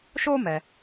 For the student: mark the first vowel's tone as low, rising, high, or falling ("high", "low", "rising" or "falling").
high